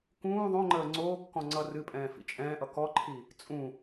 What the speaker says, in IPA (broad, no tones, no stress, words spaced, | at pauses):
kũː ðˤõŋ͡ǃəː ŋ͡ǀoːkːɔ̃ ŋ͡ǀʌrɨpʼɛ̃ː fḭt͡ʃʼɛ̃ːʔʌ kɔǃʰi | t͡sʼũ